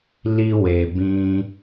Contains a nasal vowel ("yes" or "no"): yes